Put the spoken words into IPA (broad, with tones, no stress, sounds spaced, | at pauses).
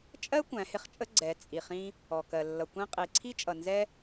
t͡ʃʼ ɜ˦ kʷ æ̃˨˦ h ɪ˧ χ t͡ʃʼ ə˦ ɡ͡ǀ ɛ˨˦ t͡sʼ i˨ χ ĩ˧ | ɔ˨ k ɜ˨ lː ʌ˨ kʷ ĩ˧ qʼ i˨ ǀʰ i˦ t͡ʃʼ ʌ˨ n z ɛ˧